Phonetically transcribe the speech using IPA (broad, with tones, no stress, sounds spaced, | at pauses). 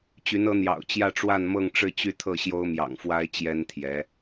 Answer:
t͡ɕ y˧˥ n ɤ˧˥ n̪ j ɑ̰˨˩ ʊ̯ t͡ɕ j ä˥˧ ʈ͡ʂ w a˥˧ n m ɤ˥˧ ŋ ʈ͡ʂ ɻ̩˥˧ t͡ɕ y˥˧ t̪ʰ ɤ˥˩ ɕ j o˥ ʊ̯ m j ɑ̰˨˩ ŋ f w a˥ ɪ̯ t͡ɕ j ɛ˥ n t̪ʰ j ɛ˧˥